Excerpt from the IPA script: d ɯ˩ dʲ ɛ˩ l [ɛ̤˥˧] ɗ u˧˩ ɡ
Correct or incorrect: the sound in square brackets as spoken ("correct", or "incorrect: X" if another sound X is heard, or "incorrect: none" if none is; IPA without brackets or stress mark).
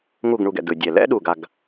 incorrect: ɛ̰˥˧